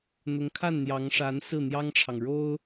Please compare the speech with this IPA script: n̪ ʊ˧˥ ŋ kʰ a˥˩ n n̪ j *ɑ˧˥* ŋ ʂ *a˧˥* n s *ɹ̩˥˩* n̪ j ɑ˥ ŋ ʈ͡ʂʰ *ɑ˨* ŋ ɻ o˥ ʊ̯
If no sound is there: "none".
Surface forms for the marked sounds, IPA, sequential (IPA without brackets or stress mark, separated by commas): ɑ˧˥, a˧˥, ɹ̩˥˩, ɑ˨